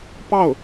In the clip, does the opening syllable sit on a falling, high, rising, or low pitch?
falling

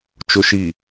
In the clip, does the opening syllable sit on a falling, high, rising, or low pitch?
low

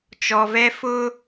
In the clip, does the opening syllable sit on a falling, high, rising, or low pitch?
low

